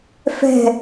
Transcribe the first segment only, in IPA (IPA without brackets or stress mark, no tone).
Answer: f